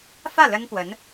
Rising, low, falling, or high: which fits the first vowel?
falling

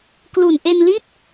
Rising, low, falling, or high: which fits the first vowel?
low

